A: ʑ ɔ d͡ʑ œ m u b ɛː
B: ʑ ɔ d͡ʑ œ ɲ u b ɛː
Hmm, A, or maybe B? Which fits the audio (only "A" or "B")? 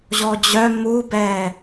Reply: A